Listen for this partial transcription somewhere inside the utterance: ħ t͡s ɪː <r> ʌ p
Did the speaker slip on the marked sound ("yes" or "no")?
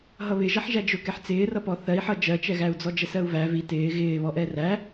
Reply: no